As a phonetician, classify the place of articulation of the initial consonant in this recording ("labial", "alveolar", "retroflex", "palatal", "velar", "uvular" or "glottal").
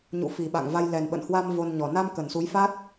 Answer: palatal